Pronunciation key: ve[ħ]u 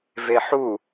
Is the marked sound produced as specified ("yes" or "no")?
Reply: yes